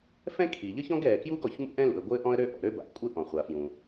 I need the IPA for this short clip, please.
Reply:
f ɛ̃˥ kʰ i˩ ʎ ə˥ ç ɔ̃˥ ɡ ɛː˩ k j uː˥ ɡ ɔ˩ ç m ṵ˥ ʔ ɛ̃˥ l ṵ˩ ə̯ ɡʷ ɘː˥ ʔ ɔ̃˥ ə̯ ɾ ø˥ ʔ ɔ̰˩ ɾ ø˥ b a̰˩ ʔ kʷʼ ɘ˥ ʔ ɔ̃˩ χʷ a˩ f j ũ˩

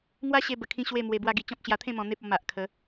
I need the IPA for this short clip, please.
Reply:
ŋ w a˦ ɕ e˧ b ə˨˩ kʰ ĩ˧ ɕ w e˥˧ m w e˧ b w a˧ ɡ i˨˩ t͡ɕ ɔ̃˦ p̚ ɕ j a˧ t̪ʰ ẽ˥˧ m ɔ̃˧ n̪ e˦ p̚ ɔ˧ m a˨ ʔ kʰ ə˨˦

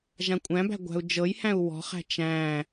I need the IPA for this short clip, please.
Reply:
ʒ ã kʷʼ æ̃ b æ̤ ɡʷ æ̤ u̯ d͡ʒ ɤ j h æ̃ u̯ w ɔ̤ χ æ̤ t͡ʃ æ̃

